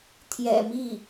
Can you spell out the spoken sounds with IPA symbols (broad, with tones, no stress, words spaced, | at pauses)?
t̪ʰjɛ̰˨˩mi˥˩